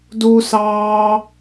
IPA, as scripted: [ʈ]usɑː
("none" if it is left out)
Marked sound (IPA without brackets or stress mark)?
d